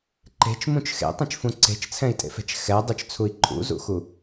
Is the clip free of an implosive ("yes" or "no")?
yes